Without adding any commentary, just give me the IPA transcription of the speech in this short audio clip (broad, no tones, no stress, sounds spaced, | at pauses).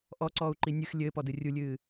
ʔ ɔ ǀ ɔː u̯ ǃ i nʲ ɨ x lʲ ɘː p ɔ d ɨ rʲ u lʲ ɨː